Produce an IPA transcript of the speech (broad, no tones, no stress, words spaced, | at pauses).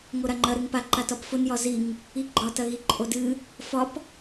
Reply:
ŋoɾaŋ͡ǃɐ ɾɨŋpa ǃatɒpfʊn jɒziŋ | iɡ͡ǃɒ tɐɣiǃʼodɨ | fɒp